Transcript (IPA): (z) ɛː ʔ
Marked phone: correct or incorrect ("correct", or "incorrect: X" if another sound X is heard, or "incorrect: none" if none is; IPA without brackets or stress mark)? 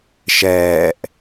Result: incorrect: ʃ